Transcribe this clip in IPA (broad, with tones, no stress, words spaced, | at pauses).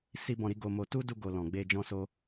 si˧bɔ̃˨ɾi˧ ɡo˧mo˧ tu˦du˧ɡo˨ lɔ̃˨ ɡ͡be˧ d͡ʒɔ̃˦so˦